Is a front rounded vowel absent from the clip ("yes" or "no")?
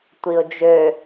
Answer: no